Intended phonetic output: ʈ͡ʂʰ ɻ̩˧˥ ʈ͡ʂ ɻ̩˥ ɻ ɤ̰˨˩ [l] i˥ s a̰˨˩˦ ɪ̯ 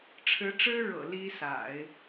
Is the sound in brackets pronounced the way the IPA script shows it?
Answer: yes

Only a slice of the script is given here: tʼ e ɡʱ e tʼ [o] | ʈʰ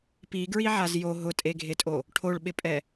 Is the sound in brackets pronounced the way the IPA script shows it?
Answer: yes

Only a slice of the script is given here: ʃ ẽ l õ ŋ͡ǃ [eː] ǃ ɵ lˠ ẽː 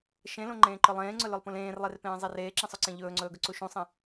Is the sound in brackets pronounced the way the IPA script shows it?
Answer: no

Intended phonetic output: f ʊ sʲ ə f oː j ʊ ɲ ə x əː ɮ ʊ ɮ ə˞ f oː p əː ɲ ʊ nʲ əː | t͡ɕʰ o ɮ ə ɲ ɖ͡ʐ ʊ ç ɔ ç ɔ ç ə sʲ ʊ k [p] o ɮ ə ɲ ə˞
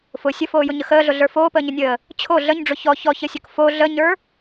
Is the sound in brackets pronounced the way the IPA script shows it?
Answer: no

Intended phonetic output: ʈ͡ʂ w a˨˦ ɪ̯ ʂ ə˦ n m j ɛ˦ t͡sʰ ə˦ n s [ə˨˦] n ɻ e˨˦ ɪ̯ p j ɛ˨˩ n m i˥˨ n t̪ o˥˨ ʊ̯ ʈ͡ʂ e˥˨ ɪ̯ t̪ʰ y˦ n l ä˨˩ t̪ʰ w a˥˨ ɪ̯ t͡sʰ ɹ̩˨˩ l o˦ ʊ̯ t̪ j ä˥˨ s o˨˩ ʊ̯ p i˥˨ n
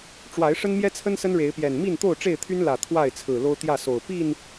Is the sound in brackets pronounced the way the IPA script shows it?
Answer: no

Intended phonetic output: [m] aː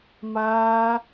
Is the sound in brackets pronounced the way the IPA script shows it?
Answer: yes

